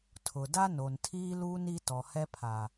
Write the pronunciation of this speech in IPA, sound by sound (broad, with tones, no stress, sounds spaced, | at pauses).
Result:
tʰ ʊ˨ d a˦ n o˨ n tʰ iː˦ l uː˦ n i˦ t ɔ˨ h ɛ˦ pʰ a˨